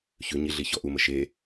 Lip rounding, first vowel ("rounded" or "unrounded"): rounded